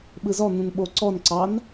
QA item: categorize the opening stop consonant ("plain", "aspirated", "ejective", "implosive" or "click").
implosive